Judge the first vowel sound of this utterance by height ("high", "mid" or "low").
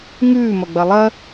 high